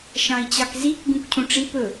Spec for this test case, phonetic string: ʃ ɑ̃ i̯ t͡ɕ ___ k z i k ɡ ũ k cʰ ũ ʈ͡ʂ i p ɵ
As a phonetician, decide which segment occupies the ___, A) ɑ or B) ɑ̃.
A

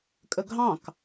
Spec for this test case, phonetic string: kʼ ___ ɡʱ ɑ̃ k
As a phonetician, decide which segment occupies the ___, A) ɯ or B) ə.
B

